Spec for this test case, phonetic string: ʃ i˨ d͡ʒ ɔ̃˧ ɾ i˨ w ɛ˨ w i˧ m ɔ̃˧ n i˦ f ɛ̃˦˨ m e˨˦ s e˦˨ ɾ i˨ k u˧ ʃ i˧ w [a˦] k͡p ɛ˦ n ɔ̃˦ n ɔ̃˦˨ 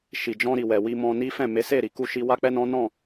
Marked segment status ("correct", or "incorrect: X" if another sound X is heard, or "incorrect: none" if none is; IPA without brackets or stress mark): correct